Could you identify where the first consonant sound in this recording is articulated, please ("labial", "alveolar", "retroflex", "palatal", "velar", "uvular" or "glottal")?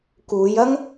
velar